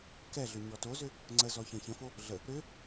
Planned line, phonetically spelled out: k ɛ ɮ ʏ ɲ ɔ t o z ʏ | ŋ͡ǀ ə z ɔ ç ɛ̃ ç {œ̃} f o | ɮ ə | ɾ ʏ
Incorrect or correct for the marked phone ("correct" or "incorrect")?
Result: incorrect